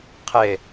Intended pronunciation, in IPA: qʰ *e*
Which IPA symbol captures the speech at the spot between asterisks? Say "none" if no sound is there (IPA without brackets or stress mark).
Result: e